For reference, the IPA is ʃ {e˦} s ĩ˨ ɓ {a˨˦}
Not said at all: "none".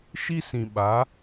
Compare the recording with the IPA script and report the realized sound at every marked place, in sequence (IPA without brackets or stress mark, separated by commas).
i˦, a˨˦